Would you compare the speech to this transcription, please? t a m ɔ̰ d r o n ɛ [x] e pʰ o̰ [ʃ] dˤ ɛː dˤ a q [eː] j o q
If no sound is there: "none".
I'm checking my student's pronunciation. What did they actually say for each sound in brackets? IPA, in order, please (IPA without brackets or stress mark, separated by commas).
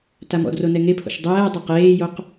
ŋ, ʃ, eː